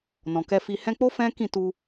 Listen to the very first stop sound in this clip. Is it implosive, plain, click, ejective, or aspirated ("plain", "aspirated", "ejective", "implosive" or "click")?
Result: plain